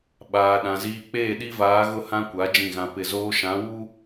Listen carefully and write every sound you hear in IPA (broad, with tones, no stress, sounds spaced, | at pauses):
ɓ aː˨ ɗ ã˨ z iː˨ k͡p eː˦˨ ɗ i˦ v aː˨˦ ɣ ʊ˦ h ã˦ kʷ a˨˦ d͡ʒ ĩ˦˨ ɣ ã˦ p ɪ˦˨ z oː˦ ʃ ã˨˦ w u˦